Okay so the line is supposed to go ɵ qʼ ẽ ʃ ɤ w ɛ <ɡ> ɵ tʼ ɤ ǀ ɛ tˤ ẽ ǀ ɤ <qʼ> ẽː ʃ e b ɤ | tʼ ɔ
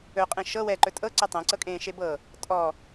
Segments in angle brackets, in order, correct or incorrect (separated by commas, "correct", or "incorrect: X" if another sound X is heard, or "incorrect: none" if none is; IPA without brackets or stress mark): incorrect: ǃ, incorrect: kʼ